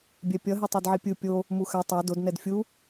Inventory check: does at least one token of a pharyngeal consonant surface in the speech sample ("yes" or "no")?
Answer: yes